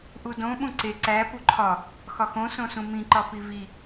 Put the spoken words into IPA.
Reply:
ʔ u d õ ɓ ũ ǀ e ǀ æ p u ǃʰ ɒ | x ɒ x õ s õ s ũ m ĩ ǃ ɒ p i v i

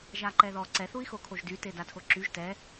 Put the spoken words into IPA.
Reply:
ʒ a ǃ ɛ ð ɔ ǀ ɛ θ u i̯ x o kʰ o ʒ d y t e d a tʰ o ǁ y ʒ t ɛ

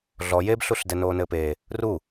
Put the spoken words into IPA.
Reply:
ɮ ɔ j e b ɬ u ɬ d ɛ n oː n ɘː p e | r u

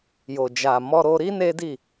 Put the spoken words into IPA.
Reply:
j o˨ d͡ʒ a˨ m ɔ˧ ɾ o˧ ɾ i˦ n e˦ d i˦˨

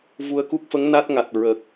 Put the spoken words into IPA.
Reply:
v u˧ ə̯ k u˦˥ k̚ f ə˧˥ ŋ n a˦˥ t̚ ŋ a˨˩ t̚ ɹ ə˨˩ k̚

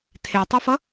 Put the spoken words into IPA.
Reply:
tʰ e tˤ u f ʌ

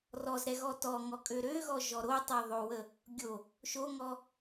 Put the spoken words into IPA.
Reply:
r ɔ z ɾ ɛ ɣ ɔ t ɔ ŋ ɔ kʼ ø ɾ ø ɣ ɔ ʒ ɔ ɾ o tˤ ɛ ðˤ o w ə | ɡʲ o | ʃ o ŋ ɔ

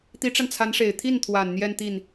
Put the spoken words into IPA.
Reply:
t̪ i˧˥ ʈ͡ʂ a˧ n t͡sʰ a˧˥ n ʂ e˨˩ ɪ̯ t̪ʰ i˥˩ n t̪ʰ w a˨˩ n n̪ j ɛ˥˧ n t̪ i˥˩ n

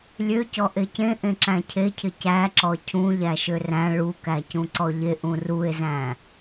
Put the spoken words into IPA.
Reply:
lʲ ø c ɔ ʔ e c ẽ ʔ ẽ ǁ æ̃ cʰ e cʰ ɪ c æ ǁ ɔ cʰ ũ ʎ æ ʃ ø r æ̃ ɭ u k æ c ũ ǀ ɔ ʎ e ʔ ũ r u e̯ z æ̃

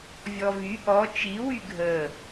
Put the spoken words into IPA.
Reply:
vʲ ɔ v y ʔ ɔ t͡ʃ i w y ɡʱ ə

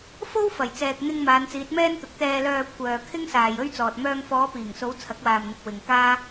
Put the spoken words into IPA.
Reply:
f o˥ w f ɐ˨˩ j t͡s ɛː˨ k̚ n̪ ɪ˧ ŋ m aː˨˧ n t͡s iː˨˥ t̚ m ɛː˥ n t̪ ʊ˨˥ k̚ t̪ ɛː˨ l œː˨ kʷʰ œː˨ kʰ ɪ˥ ŋ s aː˨ j ɵ˥ ɥ t͡s ɔː˨ t̚ m œː˧ ŋ f ɔː˨˧ p iː˨˩ ŋ s o˨˧ w t͡sʰ ɐ˨˥ k̚ w aː˨ m n̪ ɪ˨ k̚ w ɪ˧ ŋ k aː˥

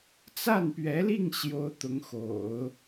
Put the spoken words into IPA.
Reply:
t͡s a˥˩ n p ɥ ɛ˧˥ l i˥˩ ŋ ɕ j o˥ ʊ̯ t̪ ʊ˧˥ ŋ x o̰˨˩˦ ʊ̯

